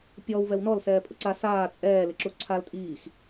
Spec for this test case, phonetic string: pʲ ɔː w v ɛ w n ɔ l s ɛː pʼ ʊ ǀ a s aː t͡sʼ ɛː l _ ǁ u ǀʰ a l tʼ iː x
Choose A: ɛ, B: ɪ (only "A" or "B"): B